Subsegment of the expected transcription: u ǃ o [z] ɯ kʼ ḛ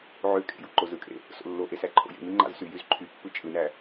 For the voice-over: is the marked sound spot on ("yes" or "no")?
yes